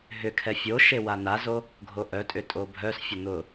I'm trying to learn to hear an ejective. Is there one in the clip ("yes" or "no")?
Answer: yes